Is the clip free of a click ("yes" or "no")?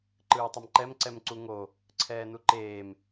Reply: no